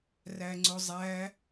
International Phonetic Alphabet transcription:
r æ ŋ͡ǀ ʊ zˤ æ

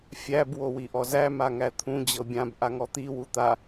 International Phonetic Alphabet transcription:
fʲ æ b w o w i ʔ ɔ z æ m a ŋ æ t̪ʰ ũ d͡ʑ ɤ bʲ ã b ʔ a ŋ ɔ t̪ i w u t̪ a

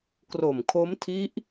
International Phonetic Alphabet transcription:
k r o˨˩ m kʰ o˦˥ m tʰ i˦˥ ʔ

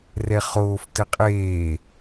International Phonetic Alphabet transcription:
r ɛ χ oː f t ɘ qʼ eː

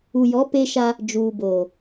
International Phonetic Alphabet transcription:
u˨ j ɔ˨˦ p eː˦ ʃ a˦ | d͡ʒ uː˨ b oː˨

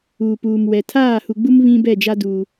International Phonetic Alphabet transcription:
uː˨ p uː˨ m w ɛ˨ tʰ aː˦˨ h u˨ ɡ͡b u˦ m β ĩ˦ b ɛ˦˨ d͡ʒ a˦ d uː˨

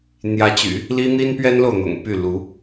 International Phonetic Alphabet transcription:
n̪ j ä˧˥ t͡ɕ y̰˨˩˦ | l i˥ n̪ i˥ n p ɥ ɛ˥ n l o˨ ʊ̯ n̪ ʊ̰˨˩ ŋ p y˥˩ l u˧˥

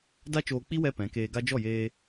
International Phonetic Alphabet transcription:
d a˦ t͡ʃ oː˧ k͡p i˦ w ɛ˦ p ɛ̃˨˦ k eː˧ ɡ a˦ d͡ʒ ɔ˦˨ j eː˧

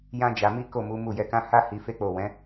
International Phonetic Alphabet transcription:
j ã˦ d͡ʒ a˧ m i˦ k o˦˨ m u˨˦ m u˦˨ j ɛ˧ k ã˦ h a˦ h i˧ f e˦ k͡p o˦˨ w ɛ̃˨˦

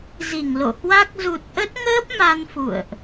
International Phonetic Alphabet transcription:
z i˧˩ ŋ l o̰˧˨ h w a˦˥ k̚ z u˨˩ t̚ ʔ ə˦˥ t̚ ŋ əː˦˥ p̚ m a˧ n f ṵ˧˨ ə̯ ʔ

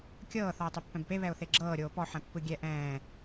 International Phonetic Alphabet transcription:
kʲ ɤː θ ɔ ɪ̯ tˤ e pː ɛ̃ b p e β ɛ ʊ̯ θ e ɡ͡ǁ ɤː ɾʲ oː p ɔ ħ ɛ̃ pː ɯ ɡʲ ɛ ʔ ɛ̃ː

